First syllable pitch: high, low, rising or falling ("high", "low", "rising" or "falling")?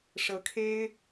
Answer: rising